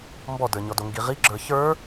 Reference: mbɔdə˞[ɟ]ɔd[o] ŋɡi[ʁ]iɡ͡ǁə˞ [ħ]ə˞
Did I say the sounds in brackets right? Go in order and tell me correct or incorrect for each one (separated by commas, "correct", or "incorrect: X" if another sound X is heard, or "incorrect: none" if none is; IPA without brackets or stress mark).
incorrect: ɲ, correct, correct, incorrect: ç